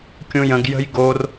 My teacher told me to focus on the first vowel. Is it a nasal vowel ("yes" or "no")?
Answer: yes